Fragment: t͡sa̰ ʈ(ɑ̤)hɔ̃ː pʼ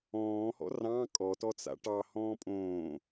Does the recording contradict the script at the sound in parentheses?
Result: yes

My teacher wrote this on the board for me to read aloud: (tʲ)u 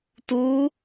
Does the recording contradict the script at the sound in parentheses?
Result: yes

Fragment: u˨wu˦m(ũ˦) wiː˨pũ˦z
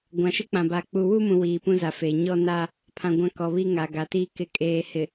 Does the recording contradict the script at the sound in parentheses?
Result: yes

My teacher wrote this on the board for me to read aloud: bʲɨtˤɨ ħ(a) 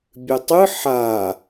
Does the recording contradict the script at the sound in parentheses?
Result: no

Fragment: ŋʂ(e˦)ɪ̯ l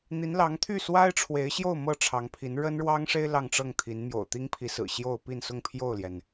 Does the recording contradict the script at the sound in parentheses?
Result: yes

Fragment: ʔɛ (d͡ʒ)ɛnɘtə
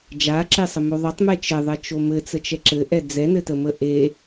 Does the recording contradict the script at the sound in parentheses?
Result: yes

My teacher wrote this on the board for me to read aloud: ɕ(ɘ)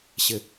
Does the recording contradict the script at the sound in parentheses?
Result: no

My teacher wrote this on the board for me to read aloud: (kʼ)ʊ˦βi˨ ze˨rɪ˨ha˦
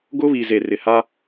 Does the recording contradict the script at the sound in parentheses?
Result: yes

